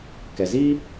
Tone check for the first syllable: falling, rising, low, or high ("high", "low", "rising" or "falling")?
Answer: low